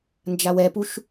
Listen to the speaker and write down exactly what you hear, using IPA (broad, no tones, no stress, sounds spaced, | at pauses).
n d͡ʒ a w ɛ p u ʃ